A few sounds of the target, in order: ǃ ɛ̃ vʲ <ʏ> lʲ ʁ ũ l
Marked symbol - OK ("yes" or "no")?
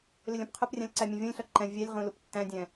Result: no